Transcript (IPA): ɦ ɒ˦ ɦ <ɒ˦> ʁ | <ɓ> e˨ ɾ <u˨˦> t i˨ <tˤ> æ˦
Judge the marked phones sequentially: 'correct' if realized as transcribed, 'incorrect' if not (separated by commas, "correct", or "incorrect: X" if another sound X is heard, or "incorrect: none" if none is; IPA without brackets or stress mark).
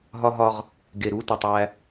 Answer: correct, incorrect: ɡ, correct, correct